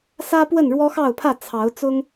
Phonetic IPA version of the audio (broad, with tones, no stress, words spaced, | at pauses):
sä˦ pwə˥˨nɻwɔ˦xɑ˥˨ʊ̯pʰä˥˨ t͡sʰɑ˨˦ʊ̯ t͡sʊ˦ŋ